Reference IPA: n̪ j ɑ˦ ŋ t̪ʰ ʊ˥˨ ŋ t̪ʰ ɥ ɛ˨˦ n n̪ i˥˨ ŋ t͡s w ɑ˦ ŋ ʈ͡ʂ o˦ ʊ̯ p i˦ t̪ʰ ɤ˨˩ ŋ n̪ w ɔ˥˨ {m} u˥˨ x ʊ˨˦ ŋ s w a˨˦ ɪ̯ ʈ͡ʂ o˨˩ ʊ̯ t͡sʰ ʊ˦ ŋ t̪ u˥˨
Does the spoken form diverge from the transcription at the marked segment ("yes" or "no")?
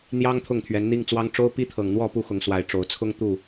yes